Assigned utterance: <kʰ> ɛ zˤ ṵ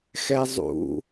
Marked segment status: incorrect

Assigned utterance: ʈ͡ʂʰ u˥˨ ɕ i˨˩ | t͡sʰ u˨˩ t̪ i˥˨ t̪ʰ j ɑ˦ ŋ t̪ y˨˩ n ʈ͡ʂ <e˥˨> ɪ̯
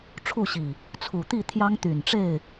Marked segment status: correct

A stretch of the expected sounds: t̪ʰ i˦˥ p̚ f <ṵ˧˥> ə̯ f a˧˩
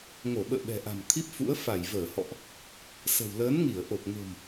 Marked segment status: correct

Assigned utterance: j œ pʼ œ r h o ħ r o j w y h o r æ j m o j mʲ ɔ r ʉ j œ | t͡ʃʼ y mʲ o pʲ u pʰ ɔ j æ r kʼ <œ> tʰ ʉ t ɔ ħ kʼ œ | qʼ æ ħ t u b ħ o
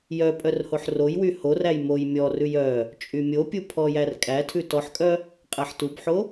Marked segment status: incorrect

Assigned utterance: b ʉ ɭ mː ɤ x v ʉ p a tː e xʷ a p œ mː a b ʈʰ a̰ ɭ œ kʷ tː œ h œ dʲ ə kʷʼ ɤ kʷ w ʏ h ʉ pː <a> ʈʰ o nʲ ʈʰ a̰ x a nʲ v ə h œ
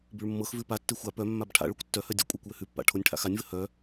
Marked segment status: incorrect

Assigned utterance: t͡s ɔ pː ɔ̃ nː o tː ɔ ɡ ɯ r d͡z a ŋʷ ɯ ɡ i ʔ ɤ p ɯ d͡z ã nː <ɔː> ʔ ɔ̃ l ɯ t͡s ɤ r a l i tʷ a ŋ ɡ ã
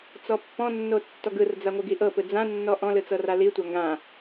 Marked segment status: incorrect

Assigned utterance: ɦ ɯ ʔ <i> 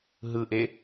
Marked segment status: incorrect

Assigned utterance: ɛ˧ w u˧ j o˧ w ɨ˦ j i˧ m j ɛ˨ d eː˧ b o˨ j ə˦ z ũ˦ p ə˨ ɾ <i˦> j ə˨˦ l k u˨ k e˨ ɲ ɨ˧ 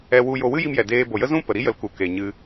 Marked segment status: correct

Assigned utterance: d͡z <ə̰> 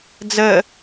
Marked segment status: incorrect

